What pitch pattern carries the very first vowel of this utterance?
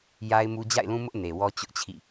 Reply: high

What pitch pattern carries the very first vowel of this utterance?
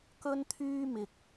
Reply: high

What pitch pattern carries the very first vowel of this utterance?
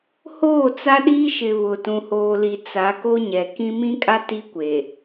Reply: falling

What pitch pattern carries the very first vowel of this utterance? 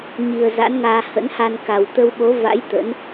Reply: low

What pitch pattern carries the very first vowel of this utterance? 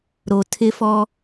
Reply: low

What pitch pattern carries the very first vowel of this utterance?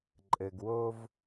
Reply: low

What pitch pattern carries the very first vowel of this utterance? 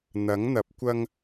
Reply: rising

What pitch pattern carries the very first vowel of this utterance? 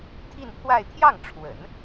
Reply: falling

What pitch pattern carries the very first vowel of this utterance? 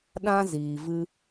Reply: high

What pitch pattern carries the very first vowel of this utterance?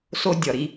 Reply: high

